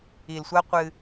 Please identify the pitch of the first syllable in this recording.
low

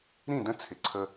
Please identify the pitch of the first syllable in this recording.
falling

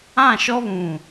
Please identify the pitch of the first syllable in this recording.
falling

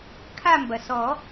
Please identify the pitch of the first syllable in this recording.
falling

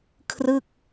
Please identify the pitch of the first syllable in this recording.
falling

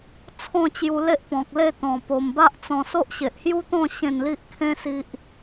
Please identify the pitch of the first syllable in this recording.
falling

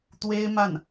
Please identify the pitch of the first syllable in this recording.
high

